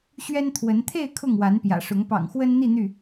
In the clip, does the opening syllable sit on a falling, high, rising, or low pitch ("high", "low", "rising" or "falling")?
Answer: high